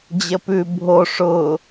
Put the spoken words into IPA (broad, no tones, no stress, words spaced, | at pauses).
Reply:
d͡ʑəpʉ bʱo ʂʊ